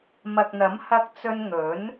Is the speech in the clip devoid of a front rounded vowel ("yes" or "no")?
yes